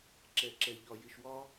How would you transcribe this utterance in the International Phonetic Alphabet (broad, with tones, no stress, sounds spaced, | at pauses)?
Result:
ǁ ɛ˨ ǁ ɛ˨ ʎ ɒ˨ j ɪ˨ ʃ w ɒ˦